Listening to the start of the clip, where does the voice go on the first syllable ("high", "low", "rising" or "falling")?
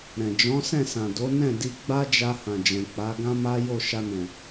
low